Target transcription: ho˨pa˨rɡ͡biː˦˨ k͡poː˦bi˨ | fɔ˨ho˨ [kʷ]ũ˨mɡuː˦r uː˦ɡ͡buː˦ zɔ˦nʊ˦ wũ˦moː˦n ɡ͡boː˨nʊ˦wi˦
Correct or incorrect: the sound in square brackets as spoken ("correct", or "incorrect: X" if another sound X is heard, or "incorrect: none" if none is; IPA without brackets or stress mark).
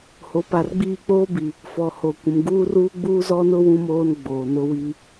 correct